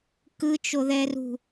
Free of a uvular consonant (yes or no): yes